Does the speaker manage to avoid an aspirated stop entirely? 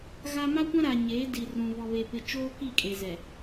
yes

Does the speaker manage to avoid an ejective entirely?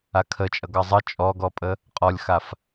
no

